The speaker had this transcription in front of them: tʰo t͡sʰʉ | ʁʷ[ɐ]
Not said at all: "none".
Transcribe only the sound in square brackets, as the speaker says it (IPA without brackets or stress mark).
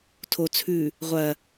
ɐ